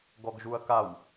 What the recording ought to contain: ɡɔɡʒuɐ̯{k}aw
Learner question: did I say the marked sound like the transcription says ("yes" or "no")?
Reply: yes